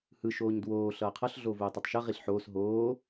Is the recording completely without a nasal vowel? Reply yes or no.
yes